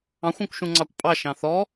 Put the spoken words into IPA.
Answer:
ɑ̃ xʷ ɔ̃ kʷ ʃ ũ ŋ͡ǀ ɑ kʷ pʼ ɑ ʃ ɑ̃ θ ɔ

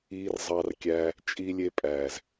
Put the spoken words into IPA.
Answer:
iː˧ r zˤ ɑ˧ r kʲ æ˧ | t͡ʃʼ i˦ lʲ e˦ pʼ æː˨ z

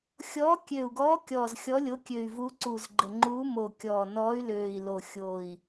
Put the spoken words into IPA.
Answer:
xʲ ɔː˨˦ kʲ ø˨˩ u̯ ɡ ɔː˨˦ kʲ ɔː˨˩ z xʲ ɔ˨˦ lʲ o˨˦ kʲ ø˨˩ y̯ v u˨˦ ǀ u˨˩ z ɡ͡ǃ ə˨˩ ŋ͡ǃ uː˨˦ m o˨˩ kʲ ɔː˨˩ n ɔː˨˦ y̯ l øː˨˩ i̯ l o˨˩ xʲ o˨˩ i̯

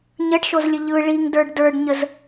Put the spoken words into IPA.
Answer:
ɲ ə ɖ ʃ o z lʲ ə ʎ ɯ ɭ i ŋ d ə˞ ɖ d ə˞ ɖ ɲ ə z

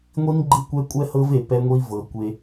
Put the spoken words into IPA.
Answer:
ŋʷ i˦ n ɡ͡ǃ ɯ˦ kʷ ɛ˦ kʷʼ ɛ˦ h ɤ˦ v e˨ p ɛ˦ ŋʷ i˦ v ɤ˨ kʷ e˦

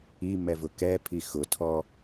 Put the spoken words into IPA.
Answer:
i m ɛ v ʊ k ɛ pʰ i x ʊ tʰ ɔ

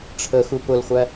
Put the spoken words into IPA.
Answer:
ʈ͡ʂʰ ə x u p ʊ l χʷ æ

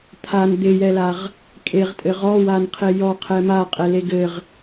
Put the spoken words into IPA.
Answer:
t̪ʰ a n d̪ ɪ j ɛ l a ʁ | kʼ e ʁ tʼ ɘ ʁ ɔ w a n qʰ e j ɔ qʰ ɛ m a qʼ ɛ l e ɡ ɘ ʁ

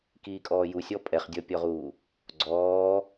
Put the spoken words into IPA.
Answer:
k iː kʼ ɔː j u sʲ ɔ pʼ ɛ χ dʲ ɔ pʲ ɔ ʁ uː | ɡ͡ǀ ɔː

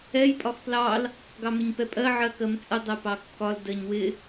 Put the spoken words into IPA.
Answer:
ɛ j pʼ ɒ x p l ɑ l | ɡ ɑ m ɪ ɲ p ɛ pʼ ɜ ʕ ɜ k ɜ m t͡sʼ ə dˤ ɛ p ɑ kː ɒ l d ɜ ɲ w ɪ

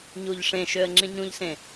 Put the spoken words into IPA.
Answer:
ɲ u ʎ ʂ ẽ ʃ ø ə̯ ŋ͡ǁ ĩ ɲ ũ ʎ s ẽ

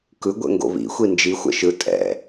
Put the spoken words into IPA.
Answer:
k ɯ ɡʷ ɛ̰ ŋ ɡ o̰ β ḭ xʷ i n d͡ʒ i xʷ ɛ̰ ʃ ɯ tʼ ɛ̰

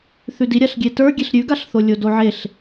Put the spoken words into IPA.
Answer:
θ ʉ d i ɾʲ a ɬ ɡʲ e t ə˞ ɡʲ e ɬ ɾʲ ʉ ɡ a ɬ θ o lʲ o d o ʕ e ɬ

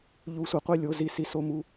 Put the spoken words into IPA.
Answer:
ʎ u˧˥ sʷ ɪ˩˥ qʷ i˦˨ lʲ o˧˥˧ z i˧˥˧ s i˧˥ s o˦˨ m u˧˥˧

